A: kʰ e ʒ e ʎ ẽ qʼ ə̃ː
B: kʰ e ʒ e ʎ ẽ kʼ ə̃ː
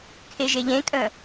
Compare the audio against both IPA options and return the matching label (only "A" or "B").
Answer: B